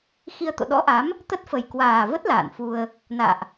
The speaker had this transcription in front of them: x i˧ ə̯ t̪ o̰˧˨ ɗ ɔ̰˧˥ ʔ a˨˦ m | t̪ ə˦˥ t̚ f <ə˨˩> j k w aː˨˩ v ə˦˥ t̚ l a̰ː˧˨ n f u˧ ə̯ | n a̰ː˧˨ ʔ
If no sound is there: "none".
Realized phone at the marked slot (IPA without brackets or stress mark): ə˨˩